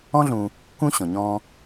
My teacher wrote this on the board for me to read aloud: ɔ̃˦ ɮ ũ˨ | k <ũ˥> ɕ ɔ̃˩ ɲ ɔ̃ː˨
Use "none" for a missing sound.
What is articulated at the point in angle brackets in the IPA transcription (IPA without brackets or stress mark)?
ũ˦